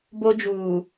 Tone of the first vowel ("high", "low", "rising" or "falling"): high